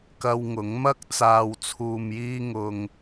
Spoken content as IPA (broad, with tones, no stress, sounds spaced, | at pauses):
k ɐ˧ w ŋ ʊ˨˥ ŋ m ɐ˥ k̚ t͡s aː˨ w t͡sʰ uː˨ m j iː˧ ŋ ʊ˧ ŋ